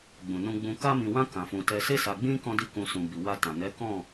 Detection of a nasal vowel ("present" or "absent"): present